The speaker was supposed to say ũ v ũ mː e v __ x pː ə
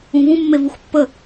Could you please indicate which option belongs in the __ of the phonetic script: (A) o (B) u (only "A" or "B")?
B